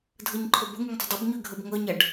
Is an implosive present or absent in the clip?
absent